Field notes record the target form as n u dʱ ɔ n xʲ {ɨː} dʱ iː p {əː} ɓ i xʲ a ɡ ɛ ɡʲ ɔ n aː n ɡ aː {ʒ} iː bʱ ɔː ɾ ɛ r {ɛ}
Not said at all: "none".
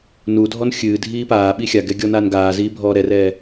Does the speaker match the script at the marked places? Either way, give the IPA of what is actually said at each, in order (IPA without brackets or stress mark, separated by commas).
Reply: ɨː, aː, z, ɛː